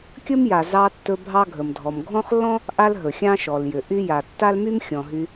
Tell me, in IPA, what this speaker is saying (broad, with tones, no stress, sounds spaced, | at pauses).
kʲ ə˦ m j a˩ z ɑ˨ tː ɵ˨ bʱ ɑ˦ ɡʱ ə˩ m dʱ ɔ˩ m ɡʱ ɔ̃˥ χ lː ɔ̃˥ | ʔ a˦ l ɦ ɵ˩ xʲ ɑ̃˦ ʃ ɔ˩ l j ʏ˩ ʔ y˦ j a˩ tː a˥ l m y˥ m xʲ ɔ̃˩ ɦ y˨